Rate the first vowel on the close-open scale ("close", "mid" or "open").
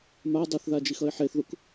open